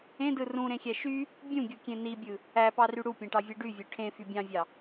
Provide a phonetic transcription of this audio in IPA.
ẽdɯ rũɾẽxʲæ ʃy | bʲũɡʲukʲẽ nibʲɯ | æpɑry ɽupʲẽʈɑvʲɯ ɖyvʲø ʈʰẽfy bʲɑ̃vʲɑ

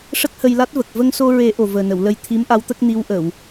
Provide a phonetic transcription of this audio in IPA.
ʂə˦˥k̚hə˧jla˦˥t̚və˨˩k̚ və˧ŋso˧ɹe˨˩˦ ʔo˨˩vəː˨˩nə˨˩˨w lə˧jt̪ʰi˧˥mʔa˧˥wt̪ə˦˥k̚ ni˧˥wʔə˨˩˨w

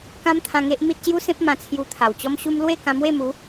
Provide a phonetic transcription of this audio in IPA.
kã˦mt̪ʰã˧ŋe˦ʔ mi˦t̚ɕju˦sẽ˦p̚ mã˧t͡sʰju˧t̪ʰa˨˩wt͡ɕɔ˦m ɕu˦m lwe˥˧ kã˧mwe˥˧mu˨˦

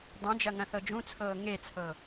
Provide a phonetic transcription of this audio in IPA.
dˤũd͡ʒɐ ŋɐ̃θɤd͡ʒũt͡sʰɤː ŋet͡sʰɤ

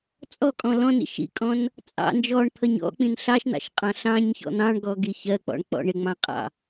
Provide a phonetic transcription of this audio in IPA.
t͡sʼɔkʼɔ̃ lɔ̃nḭ ʃḭkʼɔ̃n | t͡sʼɑ̰ nd͡ʒɔɳt̪ʰʌɲ ɔ̰k͡pĩn ɬɑʃn̪ɑ̰ʃqʼɑ̃ ɬɑ̃ɲçɔ̰ n̪ɑ̃ɳɡɔɡi çɜk͡pɔ̰ɳk͡pɔ̰ ɳɪŋ͡mɑ̃qʼɑ̰

